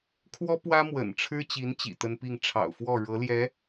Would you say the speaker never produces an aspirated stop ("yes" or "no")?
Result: no